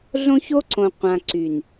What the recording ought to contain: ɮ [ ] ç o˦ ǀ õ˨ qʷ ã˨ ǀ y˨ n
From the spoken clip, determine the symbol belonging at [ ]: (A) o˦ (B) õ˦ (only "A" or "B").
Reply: B